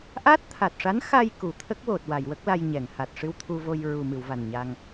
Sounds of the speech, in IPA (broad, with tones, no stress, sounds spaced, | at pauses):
ʔ a˦˥ t̚ t̪ʰ a˨˩ t̚ ʂ a˧˥ n x a˧ j k u˨˩˨ t̪ʰ ə˦˥ k̚ w o˨˩ t̚ w a˨˩˨ j w ə˦˥ k̚ l a˧ j ɲ ɛ˨˩˨ ŋ h a˨˩ t̚ ʂ ɨ˧ w t̪ʰ u˧ v o˧ j ɹ u˨˩ m ɨ˨˩˨ w v a˨˩ n ɲ a˧ ŋ